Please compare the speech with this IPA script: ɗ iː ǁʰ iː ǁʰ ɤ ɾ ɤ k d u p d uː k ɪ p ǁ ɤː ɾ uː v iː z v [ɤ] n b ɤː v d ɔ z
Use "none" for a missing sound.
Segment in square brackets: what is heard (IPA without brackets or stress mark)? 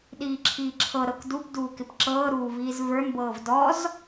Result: ə˞